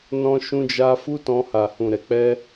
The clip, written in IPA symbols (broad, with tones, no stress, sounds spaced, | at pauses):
n ɔ̃˧ ʃ ũ˧ d͡ʒ a˧ f u˦ t ɔ̃˧ h a˨ h ũ˨ ɾ ɛ˨ k͡p ɛ˧